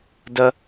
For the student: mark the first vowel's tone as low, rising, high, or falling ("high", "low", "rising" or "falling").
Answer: high